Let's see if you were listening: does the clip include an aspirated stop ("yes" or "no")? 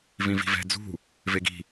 no